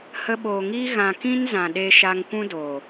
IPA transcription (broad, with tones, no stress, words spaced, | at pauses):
hə˧ɓoː˨ŋiː˦ ɣã˨ kĩ˦nzã˨ɗe˧ ʃa˧ŋkʷũ˦doː˨